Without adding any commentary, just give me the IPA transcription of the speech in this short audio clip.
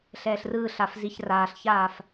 ɬɛːɬrɯːɬaf ziçraːɬçaːf

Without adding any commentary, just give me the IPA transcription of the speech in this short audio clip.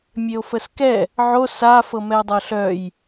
mʲeo̯fəskɛ | ʕo sa fɤmɛo̯dˤɤɬœj

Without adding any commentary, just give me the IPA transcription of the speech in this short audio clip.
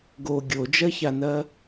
ɡo ɡʲod͡ʒɜçanɜ

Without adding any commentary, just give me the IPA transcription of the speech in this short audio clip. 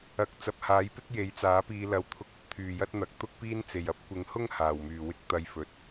ɐ˨˥k̚ t͡sɐ˨p̚haː˨˥jpɪ˥k̚ je˨˥jt͡saː˨˥piː˧lɐ˨˧w t̪ʰʊ˧k̚ɵ˧t̚ t̪ʰyː˨jɐ˥t̚n̪ɐ˨˥k̚ t̪ʊ˥k̚piː˥n t͡se˨jɐ˥p̚ kʷɪ˨˧ŋhʊ˥ŋ haː˨˩wmyː˨˩wɪ˥k̚ t̪ɐ˧jfɵ˨t̚

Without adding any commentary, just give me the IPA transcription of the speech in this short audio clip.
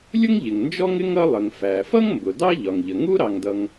lʲʊ˥ŋʎɪ˩ŋ nd͡ʒɔ˥ŋɪ˥ŋ ʌ˥lˠə˩ŋ fæ˩fʌ˥ŋmbʊ˩ dɑ˥ʎɒ˩ŋʎə˩ ŋu˥ɾɑ˩ŋdʌ˩ŋ

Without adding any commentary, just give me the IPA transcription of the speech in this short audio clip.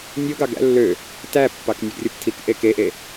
nʲoɡɑɡ æ̰ lːø | tæpːɑk nʲɯɡrʲoptʰikʔe keʔe

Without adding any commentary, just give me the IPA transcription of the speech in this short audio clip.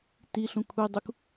tiɬũ kʷʰidˤuk

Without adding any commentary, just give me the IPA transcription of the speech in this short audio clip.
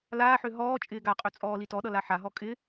laːħø ɦɔː t͡ʃʼɪːɡaqʼø t͡sʼɔːlitɔɗʌ laħaɦɔ kʼɪ

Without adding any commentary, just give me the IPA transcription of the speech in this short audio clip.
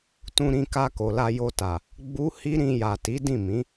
tũ˧ɾĩ˧ka˧ ko˨la˧jo˧ta˨ | ɡ͡bu˦hi˦ ɾĩ˧ja˨ti˨˦ dĩ˦˨mĩ˨˦

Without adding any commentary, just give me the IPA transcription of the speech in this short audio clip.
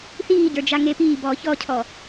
θiːɟə˞ d͡ʒaŋepiː bɔːçɔcʰɔ

